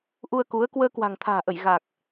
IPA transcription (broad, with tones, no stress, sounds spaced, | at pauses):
ʔ u˧ ə̯ k u˨˦ ə̯ k w əː˧ k w a̤˨˩ ŋ t̪ʰ a̤ː˨˩ ʔ ə˧˩ j ɣ a˨˩ k̚